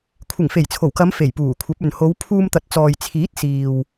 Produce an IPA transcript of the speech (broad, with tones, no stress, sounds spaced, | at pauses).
kʷʰ ɪ˨˩ ŋ f e˨˩ j t͡sʰ o˨˩ w k ɐ˨˧ m f e˨˩ j p uː˨˩ kʷʰ ɐ˨˥ p̚ ɵ˨ n h o˨˧ w pʰ uː˧ m t̪ ɐ˨ t̚ t͡s ɔː˨ j t͡sʰ iː˨˥ t̚ s iː˨ w